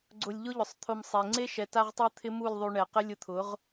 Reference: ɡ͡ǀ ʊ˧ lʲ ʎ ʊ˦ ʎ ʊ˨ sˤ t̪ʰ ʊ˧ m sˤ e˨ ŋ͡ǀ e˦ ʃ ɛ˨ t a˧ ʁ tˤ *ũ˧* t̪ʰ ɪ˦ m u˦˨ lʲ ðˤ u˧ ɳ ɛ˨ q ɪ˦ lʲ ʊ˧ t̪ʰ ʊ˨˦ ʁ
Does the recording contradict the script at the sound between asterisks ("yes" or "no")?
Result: yes